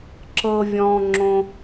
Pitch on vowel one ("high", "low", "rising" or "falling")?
high